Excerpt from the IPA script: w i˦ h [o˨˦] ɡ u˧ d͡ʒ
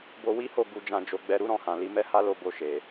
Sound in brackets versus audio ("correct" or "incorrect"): incorrect